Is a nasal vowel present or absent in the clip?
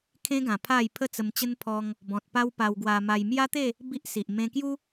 present